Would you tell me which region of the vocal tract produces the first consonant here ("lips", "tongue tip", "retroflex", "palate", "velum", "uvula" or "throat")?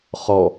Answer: uvula